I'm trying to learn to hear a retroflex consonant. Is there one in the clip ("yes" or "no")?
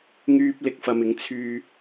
no